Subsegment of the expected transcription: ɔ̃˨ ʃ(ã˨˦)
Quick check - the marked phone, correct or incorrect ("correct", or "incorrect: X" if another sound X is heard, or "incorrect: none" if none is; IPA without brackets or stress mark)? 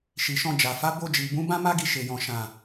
incorrect: ã˨